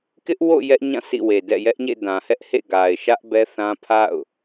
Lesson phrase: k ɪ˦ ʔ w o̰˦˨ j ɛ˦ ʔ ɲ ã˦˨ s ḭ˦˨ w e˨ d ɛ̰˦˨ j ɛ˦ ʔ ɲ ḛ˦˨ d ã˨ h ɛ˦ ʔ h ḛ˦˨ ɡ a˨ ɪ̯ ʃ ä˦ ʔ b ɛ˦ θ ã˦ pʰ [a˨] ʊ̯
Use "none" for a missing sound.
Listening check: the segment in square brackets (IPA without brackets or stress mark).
a̰˦˨